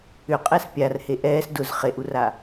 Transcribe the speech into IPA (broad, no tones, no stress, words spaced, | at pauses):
ʏqʼɛs pʲarhe ʔɛːs dʊz χeʔura